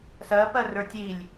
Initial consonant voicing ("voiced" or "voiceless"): voiceless